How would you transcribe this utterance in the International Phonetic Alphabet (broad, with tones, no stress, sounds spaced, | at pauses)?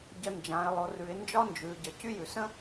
ɟ ə˧ n d͡ʒ ã˩˧ ɪ̯ lˠ o˩˧ r ʉ˩˧ ɪ̯ n d͡ʒ ɒ˥ n d͡ʒ ʉ˩˧ ɟ ə˩ c y˥ j ʉ˩ s ə̃˥